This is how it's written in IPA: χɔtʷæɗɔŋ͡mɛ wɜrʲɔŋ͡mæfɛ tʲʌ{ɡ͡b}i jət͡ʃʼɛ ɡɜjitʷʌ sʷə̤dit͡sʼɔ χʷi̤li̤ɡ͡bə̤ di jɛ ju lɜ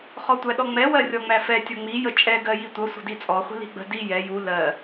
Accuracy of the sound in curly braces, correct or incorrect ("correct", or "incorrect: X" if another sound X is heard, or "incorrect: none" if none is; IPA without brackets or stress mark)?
incorrect: ŋ͡m